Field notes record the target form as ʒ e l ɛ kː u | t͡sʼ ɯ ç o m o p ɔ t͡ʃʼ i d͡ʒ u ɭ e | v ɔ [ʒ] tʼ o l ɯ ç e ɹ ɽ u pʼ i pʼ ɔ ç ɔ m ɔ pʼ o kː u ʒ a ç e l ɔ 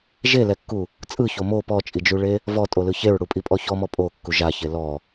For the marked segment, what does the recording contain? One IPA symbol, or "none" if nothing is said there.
none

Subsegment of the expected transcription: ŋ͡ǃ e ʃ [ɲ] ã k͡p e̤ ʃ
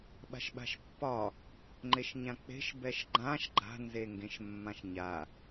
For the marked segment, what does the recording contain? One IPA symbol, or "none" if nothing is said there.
ɲ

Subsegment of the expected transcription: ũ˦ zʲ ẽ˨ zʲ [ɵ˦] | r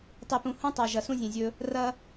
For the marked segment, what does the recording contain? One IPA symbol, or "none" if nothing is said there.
ɵ˦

